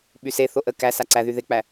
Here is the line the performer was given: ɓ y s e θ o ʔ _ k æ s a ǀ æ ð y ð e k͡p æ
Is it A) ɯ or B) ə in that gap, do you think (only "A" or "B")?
B